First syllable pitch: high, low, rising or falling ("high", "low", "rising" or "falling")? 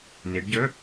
rising